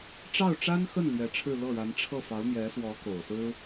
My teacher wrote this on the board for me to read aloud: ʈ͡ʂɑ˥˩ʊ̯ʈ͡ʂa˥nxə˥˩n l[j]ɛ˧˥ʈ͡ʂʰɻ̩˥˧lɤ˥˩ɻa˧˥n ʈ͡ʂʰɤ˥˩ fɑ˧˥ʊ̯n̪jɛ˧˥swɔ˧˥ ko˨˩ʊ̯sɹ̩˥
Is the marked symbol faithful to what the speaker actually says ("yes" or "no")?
no